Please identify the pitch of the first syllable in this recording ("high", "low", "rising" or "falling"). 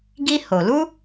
high